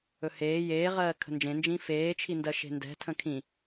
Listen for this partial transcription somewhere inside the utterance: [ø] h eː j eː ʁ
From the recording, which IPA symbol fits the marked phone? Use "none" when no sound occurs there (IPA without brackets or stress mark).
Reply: ɵ